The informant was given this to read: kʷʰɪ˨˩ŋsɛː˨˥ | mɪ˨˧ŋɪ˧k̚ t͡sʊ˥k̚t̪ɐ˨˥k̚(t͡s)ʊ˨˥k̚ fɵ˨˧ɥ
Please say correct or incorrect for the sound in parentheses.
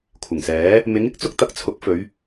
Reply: incorrect: t͡sʰ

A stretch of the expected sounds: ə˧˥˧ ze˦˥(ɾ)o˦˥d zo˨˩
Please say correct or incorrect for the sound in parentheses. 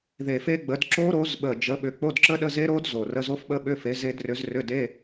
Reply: correct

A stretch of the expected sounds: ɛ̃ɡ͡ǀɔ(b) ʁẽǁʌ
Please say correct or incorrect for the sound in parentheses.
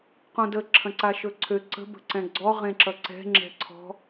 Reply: incorrect: none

